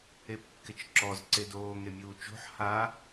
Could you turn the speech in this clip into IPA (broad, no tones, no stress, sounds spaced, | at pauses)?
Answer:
e p kː ɪ t͡ʃ ǁ ɔ z ǀ e d oː ŋ e mʲ uː t͡ʃ o̤ ħ h a